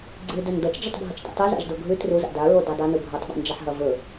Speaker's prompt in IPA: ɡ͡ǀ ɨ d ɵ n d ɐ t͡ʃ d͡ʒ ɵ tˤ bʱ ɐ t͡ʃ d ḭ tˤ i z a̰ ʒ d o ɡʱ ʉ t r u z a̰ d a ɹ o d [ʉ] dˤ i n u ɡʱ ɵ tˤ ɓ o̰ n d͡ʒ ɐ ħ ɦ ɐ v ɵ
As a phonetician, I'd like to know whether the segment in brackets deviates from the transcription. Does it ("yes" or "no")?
no